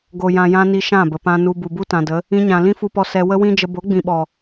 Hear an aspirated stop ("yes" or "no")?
no